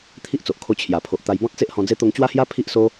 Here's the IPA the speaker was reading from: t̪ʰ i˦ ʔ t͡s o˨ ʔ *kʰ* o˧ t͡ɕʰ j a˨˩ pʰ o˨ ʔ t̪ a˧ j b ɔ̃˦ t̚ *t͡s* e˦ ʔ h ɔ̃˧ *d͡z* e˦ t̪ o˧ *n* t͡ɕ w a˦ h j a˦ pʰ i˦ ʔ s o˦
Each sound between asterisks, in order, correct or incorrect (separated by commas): correct, correct, correct, incorrect